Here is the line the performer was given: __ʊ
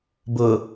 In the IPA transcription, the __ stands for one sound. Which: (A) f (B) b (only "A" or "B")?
B